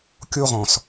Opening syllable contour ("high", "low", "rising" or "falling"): high